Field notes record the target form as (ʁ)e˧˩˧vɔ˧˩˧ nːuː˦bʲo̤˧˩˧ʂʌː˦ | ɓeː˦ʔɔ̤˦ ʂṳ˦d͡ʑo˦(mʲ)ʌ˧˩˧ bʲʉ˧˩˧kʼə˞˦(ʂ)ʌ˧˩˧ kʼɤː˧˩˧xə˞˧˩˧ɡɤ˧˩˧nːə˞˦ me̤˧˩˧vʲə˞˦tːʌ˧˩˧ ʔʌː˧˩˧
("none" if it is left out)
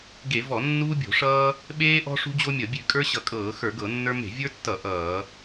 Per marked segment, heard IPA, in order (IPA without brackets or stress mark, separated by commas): ɡ, mʲ, ɕ